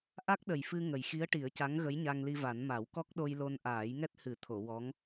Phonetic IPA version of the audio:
ʔ a˦˥ k̚ ɗ ə˨˩ j f ɨ˧ ŋ ə˨˩ j x i˧˥ ə̯ ʈ i˨˩˦ ə̯ c a˧˥ ŋ ɣ ə˧˥ j ɲ a˧ ŋ l i˧ v a˨˩˦ n m a˨˩˦ w k ɔ˦˥ k̚ ɗ o˧ j l o˧ n ʔ aː˨˩˦ j ŋ ɛ˦˥ t̚ h ɨ˨˩˦ t̪ʰ o˨˩˨ w ɔ˧˥ ŋ

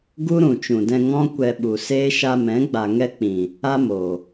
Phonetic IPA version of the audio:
ɡ u˦ ɾ ũ˨ t͡ʃ ũ˨ d ɛ̃˧ ŋ ɔ̃˦ kʷ ɛ˧ ɓ u˨ s eː˦ ʃ a˧ m ɛ̃˨˦ ɡ͡b a˨ ŋ ɛ˧ k͡p ĩ˨ | a˦ m oː˨

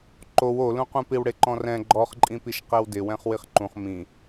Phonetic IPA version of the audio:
ǃ o w o l ũ q ũ p i w ɽ e ǃ ɔ̃ r ɛ̃ ɡ͡ǃ ɔ χ ǃʼ ĩ p i ʃ q ɛ w d ɪ w ɛ̃ χ w i χ ǃ ũ χ m ĩ

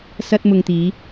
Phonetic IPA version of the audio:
s ɐ˧ t̚ m ʊ˨ ŋ t̪ iː˨˧

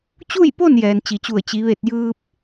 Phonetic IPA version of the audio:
t͡ɕ u˥˨ j p o˥˨ n j ɛː˩ n t͡ɕ i˩ t͡ɕ u˧˩ ə̯ t͡ɕ i˩˧ ʋ e˧˩ t̚ j ɯː˧ p̚

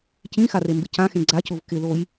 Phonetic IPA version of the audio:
c ĩ x a r e m b ɪ c ã x ẽ ɡ͡ǀ a c ʊ v k ɪ ð o j

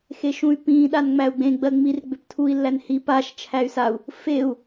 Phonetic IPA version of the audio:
x e ʃ ũ y̯ p ĩ ɗ a n ŋ͡m æ u̯ ɡ͡b ẽ ɡ͡b ɜ ŋ͡m i r ɡ͡b ʏ p tʰ u i̯ lː æ n h i p a ʃ t͡ʃʰ æ y̯ s a u̯ | f e u̯

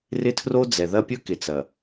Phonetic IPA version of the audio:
r ɪ˦ tʰ r o˦ d͡z ɛ˨ ð ɐ˦ pʲ ɵ˦ k ɪ˨ t͡s ɐ˨

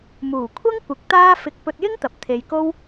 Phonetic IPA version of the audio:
m uː˨˩ kʷʰ ɐ˥ ŋ kʷ ɪ˨˥ k̚ t̪ aː˥ f ɪ˧ k̚ p ɵ˧ t̚ j ɪ˥ ŋ t̪ ɐ˨ p̚ t̪ʰ e˧ j k o˥ w

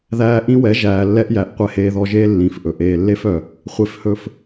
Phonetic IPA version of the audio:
ð æː˧ ʔ ĩ˦ w ɛ˨˦ ʒ æː˨ lː ɛ˦ ʔ j æ˨ ʔ qʷ ɛ˧ h eː˧ ð ɔ˧ ʒ eː˦ lː ĩ˨ f ʔ ɵ˨ ʔ eː˨ lː e˦ f œ˨ | χʷ e˧ f h ɵ˧ f

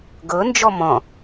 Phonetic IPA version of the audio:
ɡ ɤ n d͡ʒ ɔ m ɔ̃

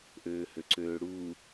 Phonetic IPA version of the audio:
ʔ øː h ø ǀ øː ɽ u

